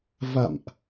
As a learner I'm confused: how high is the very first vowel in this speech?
low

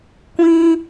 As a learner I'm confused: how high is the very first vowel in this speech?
high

